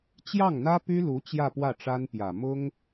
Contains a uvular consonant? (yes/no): no